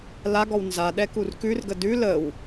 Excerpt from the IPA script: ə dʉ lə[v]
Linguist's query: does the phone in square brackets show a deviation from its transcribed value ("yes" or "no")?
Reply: yes